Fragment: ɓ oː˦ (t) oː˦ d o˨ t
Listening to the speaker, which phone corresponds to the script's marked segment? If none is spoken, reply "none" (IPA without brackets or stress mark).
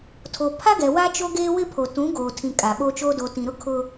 t͡ʃ